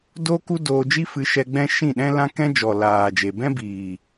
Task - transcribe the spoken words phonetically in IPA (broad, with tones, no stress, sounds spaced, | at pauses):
d o˦ k u˦ d oː˧ d͡ʒ i˦ f ɨ˧ ʃ ɛ˧ ɡ͡b ɛ̃˦ ʃ ĩ˦˨ ɗ ɛ̃˦ l ã˦ k ɛ̃˦ d͡ʒ ɔ˨ l aː˨ d͡ʒ e˨ b ɛ̃˦ b iː˨